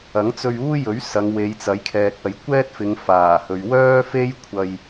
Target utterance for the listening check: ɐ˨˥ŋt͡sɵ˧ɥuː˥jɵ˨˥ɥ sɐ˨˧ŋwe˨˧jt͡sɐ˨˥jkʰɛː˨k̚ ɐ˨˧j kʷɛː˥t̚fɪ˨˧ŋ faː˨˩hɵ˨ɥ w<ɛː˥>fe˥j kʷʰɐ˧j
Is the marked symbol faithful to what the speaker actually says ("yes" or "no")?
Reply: no